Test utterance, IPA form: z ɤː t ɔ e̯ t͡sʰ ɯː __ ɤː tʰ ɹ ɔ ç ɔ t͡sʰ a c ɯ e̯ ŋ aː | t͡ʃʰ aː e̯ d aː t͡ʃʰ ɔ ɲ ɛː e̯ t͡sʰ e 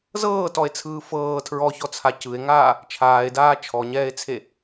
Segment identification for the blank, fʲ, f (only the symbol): f